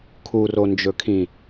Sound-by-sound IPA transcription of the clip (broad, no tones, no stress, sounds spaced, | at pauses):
kʰ u r o n d͡ʒ ɵ kʰ ĩ